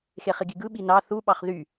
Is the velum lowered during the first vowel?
no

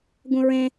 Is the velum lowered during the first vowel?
yes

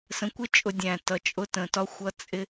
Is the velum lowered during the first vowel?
yes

